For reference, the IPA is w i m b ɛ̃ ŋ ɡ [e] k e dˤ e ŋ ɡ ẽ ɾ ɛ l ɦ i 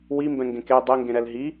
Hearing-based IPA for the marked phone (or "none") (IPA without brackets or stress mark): ẽ